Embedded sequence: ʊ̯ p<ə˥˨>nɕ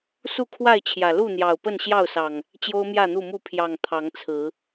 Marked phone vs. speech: correct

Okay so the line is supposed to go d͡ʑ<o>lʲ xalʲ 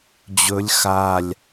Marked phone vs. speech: incorrect: ɵ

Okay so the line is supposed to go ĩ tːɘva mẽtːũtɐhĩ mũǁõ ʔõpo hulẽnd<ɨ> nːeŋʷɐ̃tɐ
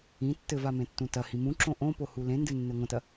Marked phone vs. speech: correct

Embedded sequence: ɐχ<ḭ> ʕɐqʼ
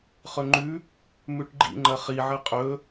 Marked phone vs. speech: incorrect: i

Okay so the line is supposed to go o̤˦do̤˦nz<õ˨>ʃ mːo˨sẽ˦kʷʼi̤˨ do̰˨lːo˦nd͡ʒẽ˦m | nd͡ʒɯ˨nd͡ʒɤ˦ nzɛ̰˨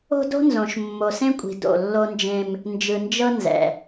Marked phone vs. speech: correct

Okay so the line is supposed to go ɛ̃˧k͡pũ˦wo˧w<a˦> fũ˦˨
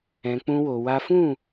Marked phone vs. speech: correct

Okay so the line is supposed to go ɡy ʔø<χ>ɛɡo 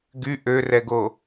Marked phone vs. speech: incorrect: r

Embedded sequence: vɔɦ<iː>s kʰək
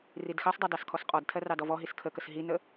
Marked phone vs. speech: incorrect: i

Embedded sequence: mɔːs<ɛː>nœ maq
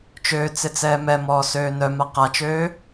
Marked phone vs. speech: incorrect: øː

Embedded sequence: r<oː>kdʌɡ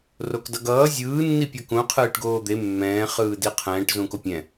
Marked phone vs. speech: incorrect: o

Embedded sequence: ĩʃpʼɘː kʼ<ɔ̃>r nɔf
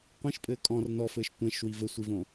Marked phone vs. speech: correct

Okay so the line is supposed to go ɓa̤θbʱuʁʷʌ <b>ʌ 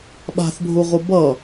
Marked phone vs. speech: correct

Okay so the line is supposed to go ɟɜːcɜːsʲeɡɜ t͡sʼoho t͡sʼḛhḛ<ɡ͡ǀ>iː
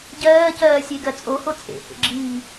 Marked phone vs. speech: incorrect: ɡ͡ǁ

